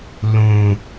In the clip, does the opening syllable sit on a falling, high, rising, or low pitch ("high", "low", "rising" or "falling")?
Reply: low